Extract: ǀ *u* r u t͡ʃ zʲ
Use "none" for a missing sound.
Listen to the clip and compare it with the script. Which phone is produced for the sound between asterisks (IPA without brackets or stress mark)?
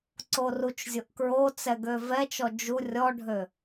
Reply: o